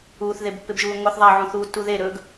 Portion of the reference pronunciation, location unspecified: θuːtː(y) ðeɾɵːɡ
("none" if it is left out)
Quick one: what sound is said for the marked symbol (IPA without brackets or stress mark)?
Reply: u